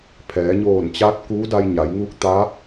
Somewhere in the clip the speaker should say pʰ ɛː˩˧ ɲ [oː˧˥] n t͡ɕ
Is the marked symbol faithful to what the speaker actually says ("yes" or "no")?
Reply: no